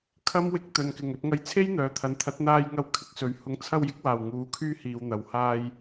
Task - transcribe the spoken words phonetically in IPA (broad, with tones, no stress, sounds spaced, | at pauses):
kʰ ɐ˥ m w ɪ˧ k̚ t̪ ɵ˨ n k ɪ˨˩ ŋ ɵ˧ t̚ ŋ ɐ˨˧ j t͡sʰ e˥ j n̪ œː˨˧ t̪ʰ ɐ˨˧ n t̪ʰ ɐ˨˥ t̚ n̪ aː˧ j ŋ ɐ˧ w kʰ ɪ˧ k̚ s ɵ˨ ɥ h ʊ˨˥ ŋ t͡sʰ ɐ˧ w j ɪ˨˥ k̚ w aː˨˩ w ŋ uː˨˥ kʰ yː˥ h iː˨ w n̪ ɐ˨˩ w h aː˧ j